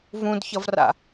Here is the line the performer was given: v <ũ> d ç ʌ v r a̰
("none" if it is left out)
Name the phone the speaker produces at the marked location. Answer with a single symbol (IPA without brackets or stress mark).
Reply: ũ